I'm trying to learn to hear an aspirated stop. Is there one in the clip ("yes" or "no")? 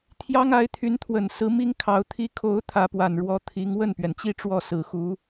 yes